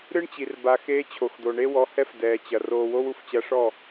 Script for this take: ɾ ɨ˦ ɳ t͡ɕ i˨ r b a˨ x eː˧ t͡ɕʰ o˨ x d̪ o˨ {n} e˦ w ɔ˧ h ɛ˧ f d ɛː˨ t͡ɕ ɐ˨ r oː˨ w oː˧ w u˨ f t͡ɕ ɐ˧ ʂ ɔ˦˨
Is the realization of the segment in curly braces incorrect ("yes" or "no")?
yes